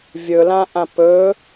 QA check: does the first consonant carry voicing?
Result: yes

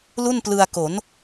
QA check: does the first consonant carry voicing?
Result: yes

